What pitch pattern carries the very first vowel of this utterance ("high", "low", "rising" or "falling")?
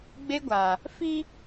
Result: high